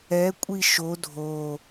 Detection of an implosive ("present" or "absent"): absent